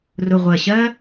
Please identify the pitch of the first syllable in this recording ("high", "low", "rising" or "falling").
low